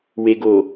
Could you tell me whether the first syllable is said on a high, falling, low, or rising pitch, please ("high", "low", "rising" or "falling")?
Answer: low